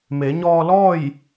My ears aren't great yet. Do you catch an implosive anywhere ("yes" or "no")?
no